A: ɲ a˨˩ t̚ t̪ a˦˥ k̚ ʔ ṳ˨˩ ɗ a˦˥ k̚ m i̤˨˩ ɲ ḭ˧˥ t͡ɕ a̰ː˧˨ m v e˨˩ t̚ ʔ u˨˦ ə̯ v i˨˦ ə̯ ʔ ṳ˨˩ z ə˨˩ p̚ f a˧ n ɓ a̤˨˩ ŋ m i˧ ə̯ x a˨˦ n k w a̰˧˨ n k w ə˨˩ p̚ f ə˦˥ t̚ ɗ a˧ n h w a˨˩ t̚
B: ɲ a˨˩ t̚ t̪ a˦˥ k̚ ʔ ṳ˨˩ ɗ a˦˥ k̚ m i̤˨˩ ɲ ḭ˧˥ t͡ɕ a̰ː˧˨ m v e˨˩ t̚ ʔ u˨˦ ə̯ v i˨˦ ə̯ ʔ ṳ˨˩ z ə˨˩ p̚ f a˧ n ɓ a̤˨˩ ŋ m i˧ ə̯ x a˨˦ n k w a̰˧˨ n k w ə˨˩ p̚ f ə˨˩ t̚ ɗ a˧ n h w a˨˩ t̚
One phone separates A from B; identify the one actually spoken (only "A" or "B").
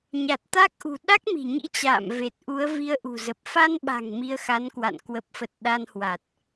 B